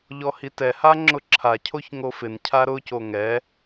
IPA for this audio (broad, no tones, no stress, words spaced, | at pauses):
ʎɔhitɛha ŋ͡ǁʊǁʰacʰoç ŋofɪncʰa ɾʊco ŋɛ